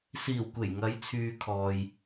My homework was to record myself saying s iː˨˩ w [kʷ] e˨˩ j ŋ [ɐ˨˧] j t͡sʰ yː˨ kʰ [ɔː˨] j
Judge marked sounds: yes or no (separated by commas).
yes, yes, yes